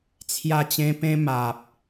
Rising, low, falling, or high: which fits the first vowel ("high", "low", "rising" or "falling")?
falling